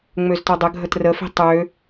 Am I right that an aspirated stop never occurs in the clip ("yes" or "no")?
yes